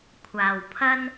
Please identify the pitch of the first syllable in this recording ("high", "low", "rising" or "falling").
low